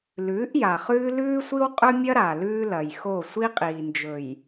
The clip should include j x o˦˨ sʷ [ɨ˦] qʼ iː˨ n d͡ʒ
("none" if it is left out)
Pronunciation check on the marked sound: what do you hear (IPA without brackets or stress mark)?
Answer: i˦